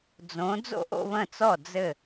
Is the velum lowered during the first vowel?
yes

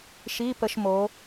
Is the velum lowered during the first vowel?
no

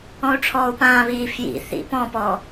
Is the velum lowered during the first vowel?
yes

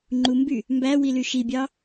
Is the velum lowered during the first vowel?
no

